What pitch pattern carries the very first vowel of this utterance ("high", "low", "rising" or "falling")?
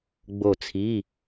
falling